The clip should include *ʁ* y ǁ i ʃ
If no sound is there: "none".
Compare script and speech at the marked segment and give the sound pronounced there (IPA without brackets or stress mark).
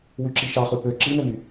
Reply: w